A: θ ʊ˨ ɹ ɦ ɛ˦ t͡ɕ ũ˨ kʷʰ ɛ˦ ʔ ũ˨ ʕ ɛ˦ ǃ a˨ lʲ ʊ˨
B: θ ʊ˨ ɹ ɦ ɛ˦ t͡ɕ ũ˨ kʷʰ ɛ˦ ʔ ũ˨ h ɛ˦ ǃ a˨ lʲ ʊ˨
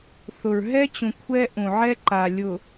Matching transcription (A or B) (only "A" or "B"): A